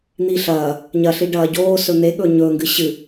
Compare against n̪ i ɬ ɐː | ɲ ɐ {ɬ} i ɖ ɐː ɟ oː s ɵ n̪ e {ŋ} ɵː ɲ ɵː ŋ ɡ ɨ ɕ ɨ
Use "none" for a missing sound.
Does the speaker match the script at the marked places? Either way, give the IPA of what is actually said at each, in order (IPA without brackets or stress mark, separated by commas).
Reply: ɬ, ɠ